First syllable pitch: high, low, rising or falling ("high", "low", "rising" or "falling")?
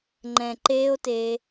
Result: low